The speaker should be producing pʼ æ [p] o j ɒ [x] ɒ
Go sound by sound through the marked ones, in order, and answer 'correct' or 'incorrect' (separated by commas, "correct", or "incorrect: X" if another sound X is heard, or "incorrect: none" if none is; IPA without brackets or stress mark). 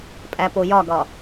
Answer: correct, incorrect: ɡ